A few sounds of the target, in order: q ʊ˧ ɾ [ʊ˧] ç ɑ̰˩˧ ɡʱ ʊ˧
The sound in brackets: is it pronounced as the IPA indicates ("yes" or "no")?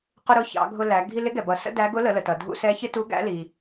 yes